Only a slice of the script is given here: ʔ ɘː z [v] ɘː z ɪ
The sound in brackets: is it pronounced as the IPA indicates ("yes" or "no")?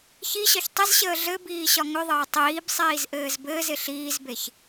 no